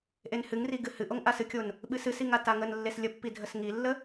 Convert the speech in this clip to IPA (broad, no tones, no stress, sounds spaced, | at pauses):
ʔ e n h ɨ ŋ r i ɡ ɨ h ɨ ʔ o ŋ ʔ a s ɨ kʲ o n | ɓ ɨ s ɨ s i ŋ a t a ŋ ə n lː e s lʲ ə pː i dʱ ə s ŋ i lː ə